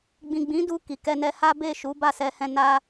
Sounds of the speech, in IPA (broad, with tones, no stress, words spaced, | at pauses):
ɡ͡bĩ˨ɡ͡bĩ˨˦ du˧ ki˨kɛ˧nɛ˧ ha˦be˦˨ ʃu˨˦ ba˦˨sɛ˧hɛ̃˧ na˦